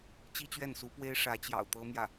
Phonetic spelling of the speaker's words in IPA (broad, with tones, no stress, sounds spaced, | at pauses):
t͡ɕ i˥ t͡ɕ ɥ ɛ˥˩ n s u˧˥ p w e˥ ɪ̯ ʂ ä˧˥ t͡ɕ j ɑ̰˨˩ ʊ̯ t̪ ɤ˥ m j ä˥˩